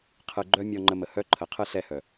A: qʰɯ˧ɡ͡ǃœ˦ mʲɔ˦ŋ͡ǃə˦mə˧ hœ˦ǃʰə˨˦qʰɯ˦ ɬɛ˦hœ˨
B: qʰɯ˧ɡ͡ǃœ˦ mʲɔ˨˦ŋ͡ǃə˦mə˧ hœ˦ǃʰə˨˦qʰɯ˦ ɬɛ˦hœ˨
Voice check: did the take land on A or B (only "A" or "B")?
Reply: A